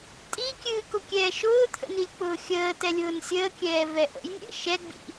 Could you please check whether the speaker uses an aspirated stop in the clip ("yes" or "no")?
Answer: yes